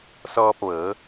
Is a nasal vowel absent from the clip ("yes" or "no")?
yes